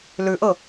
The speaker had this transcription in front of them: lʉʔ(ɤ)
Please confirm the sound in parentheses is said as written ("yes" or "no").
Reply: yes